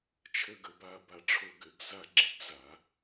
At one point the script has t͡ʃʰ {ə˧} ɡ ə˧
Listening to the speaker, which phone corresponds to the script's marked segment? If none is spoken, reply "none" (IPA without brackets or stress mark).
ə˧